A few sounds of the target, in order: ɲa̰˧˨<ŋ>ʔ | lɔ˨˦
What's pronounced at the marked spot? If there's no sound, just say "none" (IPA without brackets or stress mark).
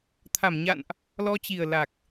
n